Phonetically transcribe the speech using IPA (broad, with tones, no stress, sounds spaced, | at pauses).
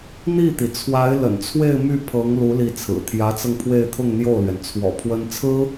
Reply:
n̪ i˥˩ t̪ i˩ t͡sʰ w a˧˥ ɪ̯ l ə̰˨˩ n t͡sʰ w e˥˧ ɪ̯ m y˥˩ pʰ ɤ˧˥ ŋ l u˧˥ l i˥˩ t͡sʰ ɹ̩˨˩ t̪ʰ j ä˧˥ t͡s ɤ˧ ŋ pʰ w e˥˧ ɪ̯ t̪ʰ ʊ˥˧ ŋ n̪ j o˥˩ ʊ̯ l ɥ ɛ˩ n t͡sʰ w ɔ̰˨˩ pʰ w ə˥ n t͡sʰ ɹ̩˥